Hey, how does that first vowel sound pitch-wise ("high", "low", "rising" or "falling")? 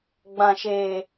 low